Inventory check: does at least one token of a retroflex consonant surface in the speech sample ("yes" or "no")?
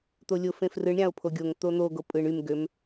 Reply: yes